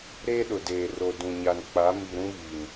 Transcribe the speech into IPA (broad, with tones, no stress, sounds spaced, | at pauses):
ɾ eː˦ ɗ ʊ˨ d eː˨ r o˨ d ũ˨ ɲ a˨ n k͡p a˨˦ m i˨ ɾ ũ˦ β i˨ n